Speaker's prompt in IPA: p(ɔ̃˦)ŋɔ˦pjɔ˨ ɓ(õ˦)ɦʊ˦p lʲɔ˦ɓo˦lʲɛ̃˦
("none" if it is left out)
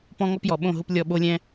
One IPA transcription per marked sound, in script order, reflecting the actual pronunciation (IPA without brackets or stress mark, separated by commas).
ɔ̃˦, õ˦˨